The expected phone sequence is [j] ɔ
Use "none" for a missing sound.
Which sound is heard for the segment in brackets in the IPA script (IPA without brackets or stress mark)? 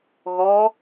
ɣ